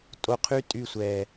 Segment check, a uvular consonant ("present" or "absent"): present